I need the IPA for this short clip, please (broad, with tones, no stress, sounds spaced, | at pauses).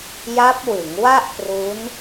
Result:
j a˦˥ p̚ w ɯ˩˦ ŋ w a˥˩ ʔ p r u˦˥ n